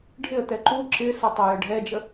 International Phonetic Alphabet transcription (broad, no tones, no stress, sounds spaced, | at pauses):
ɖʱ ɪ ə̯ t̪ ɛ ǃ u ǁ ɪ s ə tˤ ʌ j ə ɖʱ ɛ d͡ʒ ə